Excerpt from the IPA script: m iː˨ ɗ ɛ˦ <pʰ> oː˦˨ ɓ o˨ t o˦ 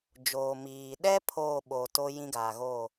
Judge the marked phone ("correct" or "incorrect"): correct